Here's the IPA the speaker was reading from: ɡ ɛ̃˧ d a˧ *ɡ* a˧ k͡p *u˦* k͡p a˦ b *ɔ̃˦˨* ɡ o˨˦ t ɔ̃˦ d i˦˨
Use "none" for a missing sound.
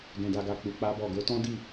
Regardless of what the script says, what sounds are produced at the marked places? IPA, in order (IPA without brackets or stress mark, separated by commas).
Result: ɡ, u˧, ɔ˦˨